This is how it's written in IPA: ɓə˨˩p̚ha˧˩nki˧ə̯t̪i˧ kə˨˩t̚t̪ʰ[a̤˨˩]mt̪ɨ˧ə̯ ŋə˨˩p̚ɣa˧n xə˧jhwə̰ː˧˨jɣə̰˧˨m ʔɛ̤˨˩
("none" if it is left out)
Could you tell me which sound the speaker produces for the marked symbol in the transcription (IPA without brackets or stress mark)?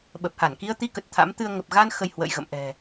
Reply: a̰˧˥